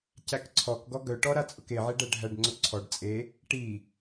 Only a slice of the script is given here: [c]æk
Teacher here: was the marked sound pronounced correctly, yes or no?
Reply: yes